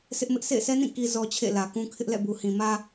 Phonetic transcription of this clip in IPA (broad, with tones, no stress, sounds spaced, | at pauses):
s ɪ˦ ʔ m ɪ˦ ʔ sʰ ḛ˦˨ ɪ̯ sʰ ɛ˦ n ĩ˦˨ k i˦ z ɔ˦ t͡ɕʰ ḛ˦˨ l ä˨ k ũ˦ kʰ ɪ˦ ʔ l ɛ̰˦˨ b u˨ h ĩ˨ m ä˦